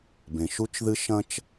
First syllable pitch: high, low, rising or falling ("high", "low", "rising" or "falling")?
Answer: low